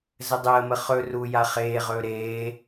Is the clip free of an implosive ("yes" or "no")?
yes